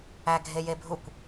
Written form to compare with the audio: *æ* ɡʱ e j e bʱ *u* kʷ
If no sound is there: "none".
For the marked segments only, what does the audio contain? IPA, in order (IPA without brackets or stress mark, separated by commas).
æ, u